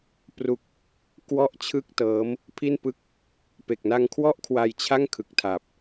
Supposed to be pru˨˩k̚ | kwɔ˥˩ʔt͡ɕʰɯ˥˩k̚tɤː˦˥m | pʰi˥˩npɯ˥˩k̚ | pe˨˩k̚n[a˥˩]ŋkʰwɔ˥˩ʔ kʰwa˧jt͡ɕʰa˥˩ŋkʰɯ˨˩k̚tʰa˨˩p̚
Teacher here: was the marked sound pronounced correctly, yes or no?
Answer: no